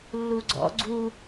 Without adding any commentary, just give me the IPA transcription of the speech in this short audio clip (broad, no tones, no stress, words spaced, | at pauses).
lːuɡ͡ǀɔ̰ ɡ͡ǀu